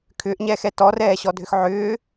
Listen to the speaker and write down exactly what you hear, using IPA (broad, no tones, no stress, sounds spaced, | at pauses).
kʰ ʏː ʔ ɲ ɛː x ɛ t ɔ r ɛː ɕ ɔ dʱ ʏ x ʕ ʏː